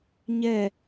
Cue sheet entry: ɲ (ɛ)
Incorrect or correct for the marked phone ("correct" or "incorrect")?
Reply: correct